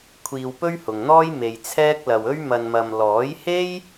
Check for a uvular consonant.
absent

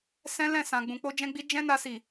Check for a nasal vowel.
present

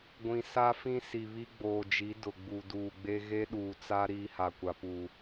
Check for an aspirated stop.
absent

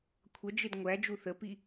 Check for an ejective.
absent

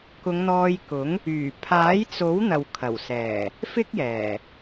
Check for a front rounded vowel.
present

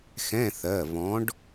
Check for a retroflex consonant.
present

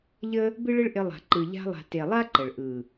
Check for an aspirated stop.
absent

